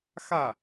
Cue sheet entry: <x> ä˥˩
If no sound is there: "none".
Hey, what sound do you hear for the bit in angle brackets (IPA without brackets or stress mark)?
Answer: x